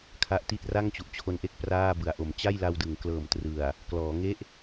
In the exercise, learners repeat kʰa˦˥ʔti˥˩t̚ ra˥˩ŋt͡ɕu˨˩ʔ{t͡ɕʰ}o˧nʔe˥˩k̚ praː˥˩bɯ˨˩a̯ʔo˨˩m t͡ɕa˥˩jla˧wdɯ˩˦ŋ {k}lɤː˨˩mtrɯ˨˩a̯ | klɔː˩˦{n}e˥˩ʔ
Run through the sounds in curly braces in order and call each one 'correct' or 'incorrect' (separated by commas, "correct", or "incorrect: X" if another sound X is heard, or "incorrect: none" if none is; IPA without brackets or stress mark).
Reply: correct, correct, incorrect: ŋ